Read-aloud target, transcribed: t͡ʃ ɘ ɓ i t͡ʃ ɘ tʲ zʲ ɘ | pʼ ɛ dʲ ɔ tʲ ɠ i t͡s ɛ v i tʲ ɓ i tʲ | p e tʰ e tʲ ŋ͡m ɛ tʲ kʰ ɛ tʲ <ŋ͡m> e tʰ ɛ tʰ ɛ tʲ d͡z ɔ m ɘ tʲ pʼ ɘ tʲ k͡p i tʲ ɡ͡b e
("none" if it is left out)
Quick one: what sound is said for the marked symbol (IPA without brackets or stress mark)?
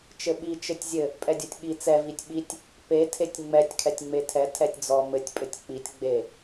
ŋ͡m